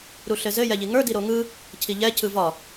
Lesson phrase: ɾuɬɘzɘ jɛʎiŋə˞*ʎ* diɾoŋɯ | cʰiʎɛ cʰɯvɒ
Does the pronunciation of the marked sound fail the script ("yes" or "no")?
yes